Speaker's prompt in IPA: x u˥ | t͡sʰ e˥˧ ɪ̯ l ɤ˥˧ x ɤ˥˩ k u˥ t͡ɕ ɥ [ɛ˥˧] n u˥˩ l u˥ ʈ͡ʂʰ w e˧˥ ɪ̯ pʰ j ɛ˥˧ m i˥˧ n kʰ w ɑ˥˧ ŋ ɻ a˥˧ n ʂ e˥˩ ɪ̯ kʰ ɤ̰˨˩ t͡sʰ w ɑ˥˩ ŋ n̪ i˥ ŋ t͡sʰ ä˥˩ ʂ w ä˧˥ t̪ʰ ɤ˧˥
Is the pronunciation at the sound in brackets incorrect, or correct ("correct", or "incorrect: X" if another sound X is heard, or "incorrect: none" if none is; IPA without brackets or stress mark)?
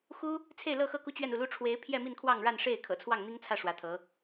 correct